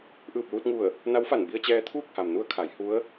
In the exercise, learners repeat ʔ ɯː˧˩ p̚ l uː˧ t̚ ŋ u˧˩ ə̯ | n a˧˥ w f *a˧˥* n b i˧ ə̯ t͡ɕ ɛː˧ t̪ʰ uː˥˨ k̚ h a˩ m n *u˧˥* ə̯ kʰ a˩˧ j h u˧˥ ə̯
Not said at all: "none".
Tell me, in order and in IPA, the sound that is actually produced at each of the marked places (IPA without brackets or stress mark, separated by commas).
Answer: a˧˩, u˧˥